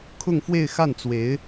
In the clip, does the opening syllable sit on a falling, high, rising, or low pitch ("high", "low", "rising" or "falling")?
falling